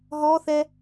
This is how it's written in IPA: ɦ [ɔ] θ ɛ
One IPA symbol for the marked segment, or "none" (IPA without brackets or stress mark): ɔ